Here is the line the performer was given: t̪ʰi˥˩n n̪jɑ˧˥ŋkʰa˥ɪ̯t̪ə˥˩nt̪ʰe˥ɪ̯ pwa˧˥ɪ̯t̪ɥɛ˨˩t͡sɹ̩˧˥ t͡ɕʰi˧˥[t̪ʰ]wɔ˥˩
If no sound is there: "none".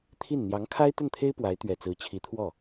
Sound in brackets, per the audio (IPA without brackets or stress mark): t̪ʰ